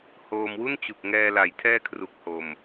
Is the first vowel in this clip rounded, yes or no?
yes